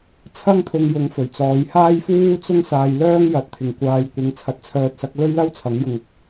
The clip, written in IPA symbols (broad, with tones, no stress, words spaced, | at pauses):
t͡sʰɐ˥ŋt̪ʰʊ˧ŋjʊ˨˥ŋfɵ˨˩ɥ t͡sɔː˨˧jhaː˥jfuː˥ t͡sʊ˥ŋsaː˧jlœː˥ŋ jɐ˨˥t̚ t̪ʰɪ˨ŋkʷaː˧jkʷɪ˧ŋ t͡sʰɐ˧t̚t͡sʰœː˧t̚sɐ˨˥k̚ lɵ˥ɥlɐ˥wt͡sʰɐ˨˥ŋ jʊ˧ŋʊ˥k̚